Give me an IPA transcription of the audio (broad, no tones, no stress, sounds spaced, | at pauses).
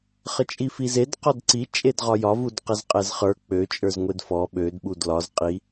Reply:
χ ə t͡ʃʼ i f i z e d q ɔ d ǀ i t͡ʃʼ e d ʁ ɒ j ɒ v u d q ə z qʼ ɛ z χ ə˞ k͡p ø t͡ʃʼ ə˞ z ŋʷ e d f ɔ ɓ ø d ɓ u d l ɒ z qʼ i